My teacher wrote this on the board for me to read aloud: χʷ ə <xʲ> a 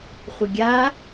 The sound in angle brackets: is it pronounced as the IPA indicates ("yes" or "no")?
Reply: no